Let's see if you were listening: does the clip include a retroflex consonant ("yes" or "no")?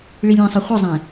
yes